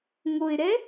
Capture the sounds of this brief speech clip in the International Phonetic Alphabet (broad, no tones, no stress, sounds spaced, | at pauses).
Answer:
ŋ o ɪ̯ ɾ ɛ